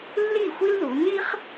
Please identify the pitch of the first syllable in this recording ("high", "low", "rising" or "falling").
falling